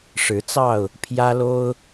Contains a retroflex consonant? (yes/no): yes